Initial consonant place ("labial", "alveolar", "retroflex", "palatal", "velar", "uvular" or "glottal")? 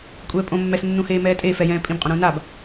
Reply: velar